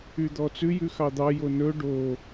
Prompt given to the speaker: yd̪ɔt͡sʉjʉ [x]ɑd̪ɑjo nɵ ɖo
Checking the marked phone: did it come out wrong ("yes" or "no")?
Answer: no